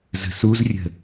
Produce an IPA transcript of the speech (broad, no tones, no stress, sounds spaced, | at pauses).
z ə̤ s u z rʲ ə̤